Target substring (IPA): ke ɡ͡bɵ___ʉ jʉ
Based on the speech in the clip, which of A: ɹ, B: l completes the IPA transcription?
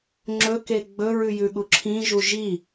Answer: A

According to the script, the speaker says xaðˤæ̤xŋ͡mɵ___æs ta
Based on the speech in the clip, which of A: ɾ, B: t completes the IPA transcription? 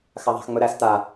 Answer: A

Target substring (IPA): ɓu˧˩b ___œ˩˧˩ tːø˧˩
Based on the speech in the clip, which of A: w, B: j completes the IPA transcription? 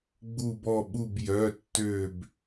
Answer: B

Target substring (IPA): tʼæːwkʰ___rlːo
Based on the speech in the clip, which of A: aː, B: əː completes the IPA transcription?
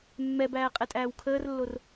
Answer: B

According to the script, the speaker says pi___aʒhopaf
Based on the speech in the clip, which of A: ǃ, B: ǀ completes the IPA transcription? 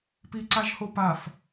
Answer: B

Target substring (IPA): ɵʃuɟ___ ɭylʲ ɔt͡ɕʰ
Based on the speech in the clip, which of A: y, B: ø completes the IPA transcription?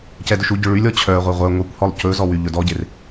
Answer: B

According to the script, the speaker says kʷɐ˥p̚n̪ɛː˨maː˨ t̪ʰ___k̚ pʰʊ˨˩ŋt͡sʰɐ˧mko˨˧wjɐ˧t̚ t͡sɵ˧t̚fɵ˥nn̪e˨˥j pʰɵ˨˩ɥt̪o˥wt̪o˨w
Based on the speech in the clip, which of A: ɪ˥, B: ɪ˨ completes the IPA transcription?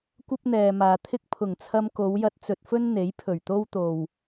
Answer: A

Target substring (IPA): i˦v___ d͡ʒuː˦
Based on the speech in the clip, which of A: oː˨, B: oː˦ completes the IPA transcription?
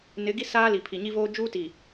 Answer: B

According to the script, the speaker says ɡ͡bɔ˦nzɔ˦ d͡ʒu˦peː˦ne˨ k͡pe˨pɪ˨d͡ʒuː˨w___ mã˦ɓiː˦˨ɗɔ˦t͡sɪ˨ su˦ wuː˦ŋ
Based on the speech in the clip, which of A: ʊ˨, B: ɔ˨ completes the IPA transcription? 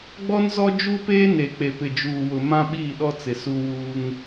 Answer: A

